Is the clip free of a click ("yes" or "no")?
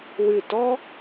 yes